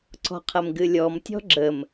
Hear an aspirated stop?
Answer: yes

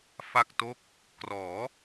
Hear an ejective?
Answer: no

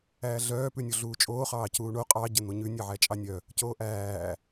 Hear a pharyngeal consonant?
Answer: yes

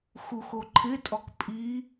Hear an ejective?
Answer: yes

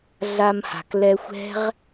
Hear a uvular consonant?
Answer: yes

